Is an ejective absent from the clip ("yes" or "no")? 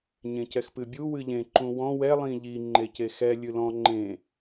yes